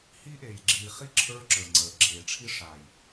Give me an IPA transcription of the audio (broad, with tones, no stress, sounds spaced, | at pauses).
h iː˦ ʔ eː˨ j ɡ͡ǁ iː˨ χ i˦ ǁʰ ə˞˦ ǁ ə˞˨ ŋ͡ǀ əː˨ ʔ ɡ͡ǁ eː˨ ʈ͡ʂʰ i˦ ʂ aː˨ j